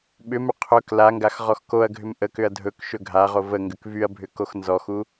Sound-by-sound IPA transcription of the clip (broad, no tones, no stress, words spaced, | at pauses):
ɓʏmʏ qʰɵk laŋɡax ʁɔxkoɐ̯ɡʱʏm ʔəkʏɐ̯ dʱɵk ʃɵɡʱaʁo vəŋɡʏk vyɐ̯bʱʏ koxnzɔxu